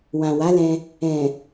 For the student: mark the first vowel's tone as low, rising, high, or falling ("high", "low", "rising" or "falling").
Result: low